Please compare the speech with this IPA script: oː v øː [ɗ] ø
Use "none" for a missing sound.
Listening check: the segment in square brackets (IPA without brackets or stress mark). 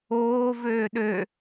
ɗ